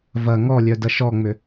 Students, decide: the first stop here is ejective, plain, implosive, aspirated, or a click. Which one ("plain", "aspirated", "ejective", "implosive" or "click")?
plain